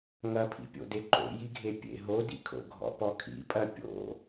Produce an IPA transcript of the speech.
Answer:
ŋ ɐ pʰ ḭ pʲ o̰ d e ǃ o̰ j i ɡʱ e pʲ ḛ ɦ o d ḭ kʰ o̰ ɡʱ ɔ̰ p ɔ kʰ ḭ pʼ ɐ pʲ o̰

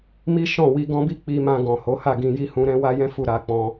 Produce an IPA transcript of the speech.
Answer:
m i˦ ʃ ɔ̃˦˨ w i˧ ɡ ɔ̃˦ b i˦ k͡p i˧ m ã˧ ɡ ɔ̃˨ h o˨˦ h a˦˨ ɡ ĩ˧ j i˦ h ũ˧ ɾ ɛ̃˦ w a˦ j ɛ̃˦ f u˦˨ ɾ a˧ k͡p ɔ̃˧

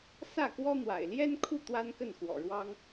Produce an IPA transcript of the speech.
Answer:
s ä˥˩ k w ɔ˥ n̪ w a̰˨˩ ɪ̯ l j ɛ˥ n kʰ u˥˩ t̪ w a˥ n k ə˥˩ n x w ɔ̰˨˩ ɻ w ɑ˥ ŋ

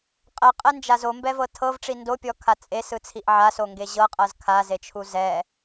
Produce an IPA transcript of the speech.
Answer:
qʼ ɛ qʼ ɛ n d͡ʒ a z o m b ɛ v ɤ tʰ ɤ v ʈ͡ʂ i n d o pʲ ɔ kʰ a t͡sʼ e s ɯ t͡sʰ i ʔ ʕ a s o ŋ ɡ e ʑ ɤ qʼ ɤ z kʰ a z e t͡ʃʰ u z ɛ

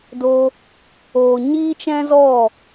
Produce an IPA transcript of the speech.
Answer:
d o˧ | oː˨ ɲ iː˦ t͡ʃ ɛ̃˦ z ɔ˦˨

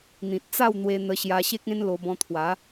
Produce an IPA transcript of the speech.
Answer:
n̪ ĩ˨ t̚ t͡s a˥˧ w n̪ w e˧ n̪ ə˧ ɕ j a˧ ɕ e˦ k̚ ẽ˦ n l o˧ b ɔ̃˧ t̪ʰ w a˨˦

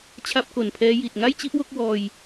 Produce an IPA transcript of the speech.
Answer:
t͡ɕʰ a˥˩ p̚ k o˨˩ n pʰ ɛː˦˥ j i˨˩ t̚ ŋ a˥˩ j t͡ɕ i˥˩ ʔ w o˥˩ k̚ w ɔː˧ j

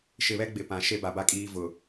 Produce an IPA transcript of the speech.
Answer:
ʃ ɪ˨ β ɛ˦ ɡ͡b ɪ˨ p ã˨ ʃ e˦ b a˨ b a˦ kʼ iː˦ v ʊ˨

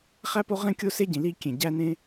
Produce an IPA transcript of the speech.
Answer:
χ æ˥ p o˥ ʁ ẽ˥ kʲ o˥ s e˥ ɟ ĩ˩ l i˥ kʲ ẽ˩ ɟ æ˥ n ẽ˥

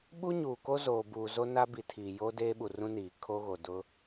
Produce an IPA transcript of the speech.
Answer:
ɓ u˦ ɲ uː˨ k o˦ z oː˨ b uː˨ z o˦ n a˦ b i˨ tʰ iː˨ j oː˦ d eː˦ ɓ u˨ r ũ˦ n iː˨ kʰ o˦ ɣ o˨ d ʊ˦

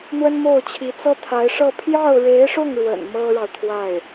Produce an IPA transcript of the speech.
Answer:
n̪ w ə˥ n m o˥˩ ʊ̯ t͡ɕʰ i˧˥ t͡s ɤ˥ t̪ʰ a˧˥ ɪ̯ ʂ ɤ˥˧ pʰ j ɑ˥˩ ʊ̯ ɻ e˧˥ ɪ̯ ʂ ʊ˥˩ ŋ ɻ w ə̰˨˩ n m ɤ˥ ɻ ɑ˨ ʊ̯ t̪ʰ w a˥˩ ɪ̯

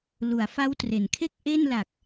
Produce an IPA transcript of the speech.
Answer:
l u˩˦ a̯ f a˦˥ w t r e˩˦ n kʰ e˥˩ k̚ ʔ e˥˩ n l a˨˩ k̚

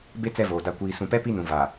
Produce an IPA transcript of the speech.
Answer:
b e˦ t͡s ɛ˦ v oː˨ d a˨ kʷ iː˨ s ũ˨ p ɛ˦ p i˦ n ũ˨ v a˨

